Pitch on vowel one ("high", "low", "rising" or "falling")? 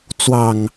low